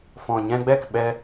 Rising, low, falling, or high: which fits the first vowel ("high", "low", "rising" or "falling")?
low